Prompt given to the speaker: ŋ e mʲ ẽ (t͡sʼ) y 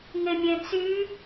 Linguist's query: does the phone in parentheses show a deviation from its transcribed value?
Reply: yes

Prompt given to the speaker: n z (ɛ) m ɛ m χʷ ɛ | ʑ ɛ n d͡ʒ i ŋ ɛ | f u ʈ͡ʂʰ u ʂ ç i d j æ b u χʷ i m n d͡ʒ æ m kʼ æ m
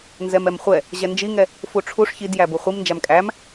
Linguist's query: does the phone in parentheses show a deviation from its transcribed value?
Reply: no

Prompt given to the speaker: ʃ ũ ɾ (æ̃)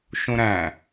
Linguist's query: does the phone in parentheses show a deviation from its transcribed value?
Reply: no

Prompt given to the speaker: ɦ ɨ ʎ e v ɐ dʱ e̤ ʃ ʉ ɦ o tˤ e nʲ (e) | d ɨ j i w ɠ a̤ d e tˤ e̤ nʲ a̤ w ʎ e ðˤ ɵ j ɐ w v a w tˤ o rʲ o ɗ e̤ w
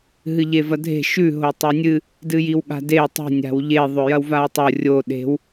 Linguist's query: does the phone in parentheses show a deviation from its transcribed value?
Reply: yes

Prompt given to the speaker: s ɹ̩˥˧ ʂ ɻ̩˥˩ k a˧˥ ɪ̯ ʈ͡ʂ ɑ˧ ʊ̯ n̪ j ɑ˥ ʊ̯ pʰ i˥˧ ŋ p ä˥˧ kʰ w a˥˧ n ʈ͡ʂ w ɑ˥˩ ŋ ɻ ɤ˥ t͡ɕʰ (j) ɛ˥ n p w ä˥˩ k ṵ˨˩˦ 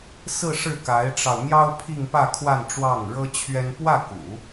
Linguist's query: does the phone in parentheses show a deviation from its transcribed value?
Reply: yes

